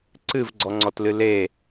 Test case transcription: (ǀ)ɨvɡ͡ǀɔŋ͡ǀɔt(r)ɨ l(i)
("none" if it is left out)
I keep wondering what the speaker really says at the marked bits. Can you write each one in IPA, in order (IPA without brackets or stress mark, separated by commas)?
ǀ, l, e